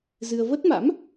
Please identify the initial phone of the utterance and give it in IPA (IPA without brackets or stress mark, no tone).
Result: z